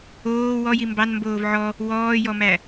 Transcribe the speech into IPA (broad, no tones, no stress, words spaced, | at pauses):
oː wɔji mbɑnmboːv ʕɔ | wɔːjɔmæ